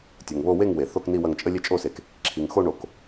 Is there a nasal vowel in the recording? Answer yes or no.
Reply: no